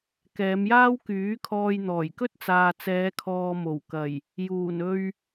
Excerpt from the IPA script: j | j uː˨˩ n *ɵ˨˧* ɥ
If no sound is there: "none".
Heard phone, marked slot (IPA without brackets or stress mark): ɵ˧